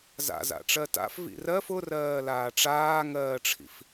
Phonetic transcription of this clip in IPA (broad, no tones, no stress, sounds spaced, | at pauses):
z a̰ z a̰ ʈ͡ʂ ɜ t a̰ f v ḭ r ɜ f ʊ r ɜː l aː ʈ͡ʂ aː ŋ ɜː ʈ͡ʂʰ ḭ f